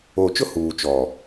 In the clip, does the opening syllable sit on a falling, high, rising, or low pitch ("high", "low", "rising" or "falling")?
low